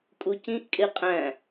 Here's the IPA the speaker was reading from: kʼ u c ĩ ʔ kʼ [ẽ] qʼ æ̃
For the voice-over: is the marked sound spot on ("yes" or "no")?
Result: no